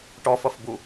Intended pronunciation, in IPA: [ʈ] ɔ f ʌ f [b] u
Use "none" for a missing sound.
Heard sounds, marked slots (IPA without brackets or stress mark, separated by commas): ʈ, b